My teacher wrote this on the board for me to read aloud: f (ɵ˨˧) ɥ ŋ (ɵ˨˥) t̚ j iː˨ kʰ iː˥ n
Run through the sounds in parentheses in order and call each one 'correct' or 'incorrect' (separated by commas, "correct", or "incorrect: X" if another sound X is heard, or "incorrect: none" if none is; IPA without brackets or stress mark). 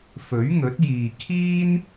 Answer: incorrect: ɵ˨˥, correct